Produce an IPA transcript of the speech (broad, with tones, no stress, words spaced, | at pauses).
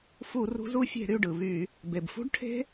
fu˧˩˧rṳ˨˦z u˨˦fʲe̤˧˩˧ ɾy˩˧˩ɖɯ˩ βy˧˩˧ | be˩bfṳ˦˥ɖʈʰe̤˦˥